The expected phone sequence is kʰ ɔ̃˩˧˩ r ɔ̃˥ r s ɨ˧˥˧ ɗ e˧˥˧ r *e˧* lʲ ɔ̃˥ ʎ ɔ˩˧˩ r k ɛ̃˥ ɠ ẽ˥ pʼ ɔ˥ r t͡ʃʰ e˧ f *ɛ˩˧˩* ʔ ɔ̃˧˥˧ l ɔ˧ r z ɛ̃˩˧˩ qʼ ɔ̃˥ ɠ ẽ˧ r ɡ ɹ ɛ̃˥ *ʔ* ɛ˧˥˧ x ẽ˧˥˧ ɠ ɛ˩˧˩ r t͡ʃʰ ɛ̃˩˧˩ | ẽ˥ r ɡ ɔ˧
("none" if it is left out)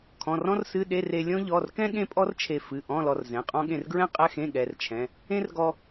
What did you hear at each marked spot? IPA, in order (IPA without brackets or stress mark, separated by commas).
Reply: e˧, ɨ˩˧˩, qʼ